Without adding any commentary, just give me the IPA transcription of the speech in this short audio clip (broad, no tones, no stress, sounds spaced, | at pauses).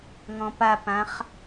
ŋ ɔ̃ p a p ã χ